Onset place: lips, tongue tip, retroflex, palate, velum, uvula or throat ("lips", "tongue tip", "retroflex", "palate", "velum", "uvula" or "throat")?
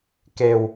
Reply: velum